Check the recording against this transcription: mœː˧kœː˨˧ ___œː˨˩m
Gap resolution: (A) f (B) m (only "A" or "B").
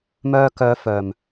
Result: A